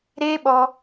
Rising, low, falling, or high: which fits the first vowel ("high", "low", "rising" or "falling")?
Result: high